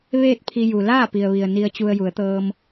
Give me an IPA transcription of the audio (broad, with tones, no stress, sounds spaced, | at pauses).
ʋ eː˥˨ t̚ pʰ i˧ j u˩ l aː˥˨ p i˩ ə̯ ʋ i˩ ə̯ n i˧ ə̯ t͡ɕ u˧ ə̯ j u˩˧ ə̯ t̪ ɤː˧ m